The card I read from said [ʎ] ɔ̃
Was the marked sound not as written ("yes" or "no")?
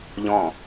no